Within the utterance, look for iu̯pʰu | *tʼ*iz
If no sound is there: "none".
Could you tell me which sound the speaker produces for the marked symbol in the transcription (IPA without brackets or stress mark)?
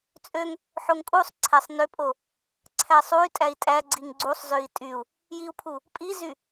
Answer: pʼ